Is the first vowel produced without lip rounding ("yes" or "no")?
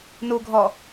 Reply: no